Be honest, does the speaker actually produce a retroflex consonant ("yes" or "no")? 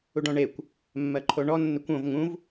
yes